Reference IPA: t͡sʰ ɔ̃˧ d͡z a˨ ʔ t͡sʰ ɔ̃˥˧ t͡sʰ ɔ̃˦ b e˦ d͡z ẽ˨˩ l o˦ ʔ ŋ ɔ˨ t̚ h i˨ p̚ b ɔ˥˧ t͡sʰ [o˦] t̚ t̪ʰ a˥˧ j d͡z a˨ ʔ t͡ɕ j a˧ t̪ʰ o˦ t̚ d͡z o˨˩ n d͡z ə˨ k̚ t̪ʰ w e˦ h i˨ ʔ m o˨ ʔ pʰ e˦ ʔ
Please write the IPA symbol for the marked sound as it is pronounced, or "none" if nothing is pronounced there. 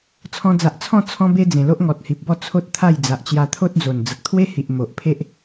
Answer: o˦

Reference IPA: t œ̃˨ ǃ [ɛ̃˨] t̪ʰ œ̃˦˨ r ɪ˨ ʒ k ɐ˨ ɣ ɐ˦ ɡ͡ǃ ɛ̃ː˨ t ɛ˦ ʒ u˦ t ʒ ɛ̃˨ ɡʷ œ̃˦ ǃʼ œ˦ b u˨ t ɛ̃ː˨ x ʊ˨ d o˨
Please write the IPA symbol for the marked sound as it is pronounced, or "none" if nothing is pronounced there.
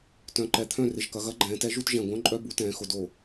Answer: ɛ˨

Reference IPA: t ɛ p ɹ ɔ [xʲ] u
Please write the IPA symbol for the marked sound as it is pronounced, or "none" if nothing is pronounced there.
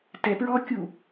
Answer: kʲ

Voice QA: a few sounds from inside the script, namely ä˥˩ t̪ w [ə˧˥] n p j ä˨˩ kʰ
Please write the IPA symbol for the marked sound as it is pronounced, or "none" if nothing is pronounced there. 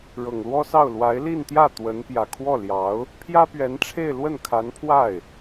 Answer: ə˧˥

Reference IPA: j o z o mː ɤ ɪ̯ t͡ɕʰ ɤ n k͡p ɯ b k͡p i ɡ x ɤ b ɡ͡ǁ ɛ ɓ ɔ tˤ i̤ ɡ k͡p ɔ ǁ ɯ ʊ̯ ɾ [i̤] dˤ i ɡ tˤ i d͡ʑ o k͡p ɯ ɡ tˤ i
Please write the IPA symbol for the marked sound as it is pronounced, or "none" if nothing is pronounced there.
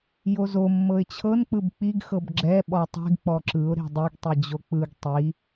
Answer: i̤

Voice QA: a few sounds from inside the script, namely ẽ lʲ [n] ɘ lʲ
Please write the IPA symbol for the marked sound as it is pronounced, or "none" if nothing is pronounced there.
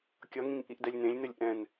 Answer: n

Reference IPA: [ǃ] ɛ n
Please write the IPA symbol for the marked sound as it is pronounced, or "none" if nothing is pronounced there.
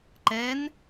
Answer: ǃ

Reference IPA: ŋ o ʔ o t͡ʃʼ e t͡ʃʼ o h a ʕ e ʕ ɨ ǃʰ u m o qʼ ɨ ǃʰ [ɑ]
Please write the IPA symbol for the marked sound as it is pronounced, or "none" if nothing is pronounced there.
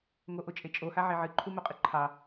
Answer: ɑ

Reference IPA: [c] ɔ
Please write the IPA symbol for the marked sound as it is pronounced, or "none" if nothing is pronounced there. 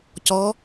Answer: c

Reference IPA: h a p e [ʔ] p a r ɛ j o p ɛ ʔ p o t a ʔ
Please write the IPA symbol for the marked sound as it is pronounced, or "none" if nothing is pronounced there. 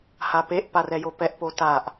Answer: ʔ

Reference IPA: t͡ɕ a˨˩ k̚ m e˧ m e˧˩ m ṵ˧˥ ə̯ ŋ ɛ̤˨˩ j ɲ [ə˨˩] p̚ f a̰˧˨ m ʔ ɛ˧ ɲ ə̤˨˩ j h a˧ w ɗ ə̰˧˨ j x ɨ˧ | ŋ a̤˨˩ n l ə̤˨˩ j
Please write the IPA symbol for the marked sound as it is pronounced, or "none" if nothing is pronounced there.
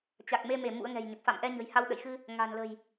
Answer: ə˨˩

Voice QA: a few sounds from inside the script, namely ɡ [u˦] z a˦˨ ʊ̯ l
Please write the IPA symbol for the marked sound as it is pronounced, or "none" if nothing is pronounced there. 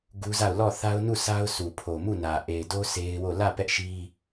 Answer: u˦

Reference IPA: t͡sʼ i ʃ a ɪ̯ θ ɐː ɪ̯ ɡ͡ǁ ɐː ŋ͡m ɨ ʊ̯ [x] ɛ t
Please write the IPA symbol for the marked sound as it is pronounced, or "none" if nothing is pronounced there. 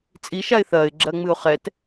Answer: χ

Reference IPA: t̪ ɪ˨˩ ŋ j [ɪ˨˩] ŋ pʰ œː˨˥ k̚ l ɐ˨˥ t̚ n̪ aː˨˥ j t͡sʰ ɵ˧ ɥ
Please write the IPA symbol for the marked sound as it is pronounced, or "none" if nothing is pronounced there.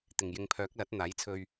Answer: ɪ˨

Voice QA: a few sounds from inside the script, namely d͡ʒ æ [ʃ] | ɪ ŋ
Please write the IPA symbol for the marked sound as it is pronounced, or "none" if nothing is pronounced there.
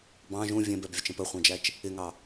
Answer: t͡ʃ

